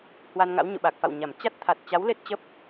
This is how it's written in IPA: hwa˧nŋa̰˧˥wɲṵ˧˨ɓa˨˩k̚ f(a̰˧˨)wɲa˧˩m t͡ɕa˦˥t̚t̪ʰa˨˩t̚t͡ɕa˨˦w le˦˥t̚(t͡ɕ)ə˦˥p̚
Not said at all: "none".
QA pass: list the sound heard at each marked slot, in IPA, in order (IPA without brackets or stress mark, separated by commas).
a̰˧˨, t͡ɕ